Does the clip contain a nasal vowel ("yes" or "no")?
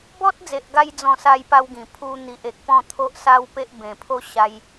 yes